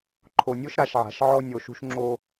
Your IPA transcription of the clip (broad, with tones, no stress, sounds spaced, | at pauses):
ǃʰ o˨ nʲ o˦ ʃ ɾ a˨ ʃ ʕ a̤˨ ʃ ʕ ɔ˦ nʲ o˨ ʃ ṳ˦ ʃ ŋ͡ǁ o˦